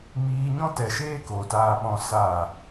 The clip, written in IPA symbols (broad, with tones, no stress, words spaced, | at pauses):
miː˧ɲɔ̃˦ tɛ˨ʃeː˦ko˨ taː˧ɓɔ̃˧ sa˦˨